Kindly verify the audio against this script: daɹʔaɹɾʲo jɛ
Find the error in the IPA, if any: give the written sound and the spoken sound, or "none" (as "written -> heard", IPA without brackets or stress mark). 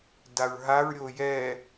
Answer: ʔ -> ɦ